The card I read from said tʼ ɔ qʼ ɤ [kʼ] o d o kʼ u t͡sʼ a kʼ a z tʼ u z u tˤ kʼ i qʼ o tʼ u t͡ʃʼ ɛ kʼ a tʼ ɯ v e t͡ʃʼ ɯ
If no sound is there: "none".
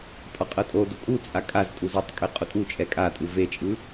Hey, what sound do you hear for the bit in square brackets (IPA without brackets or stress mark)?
tʼ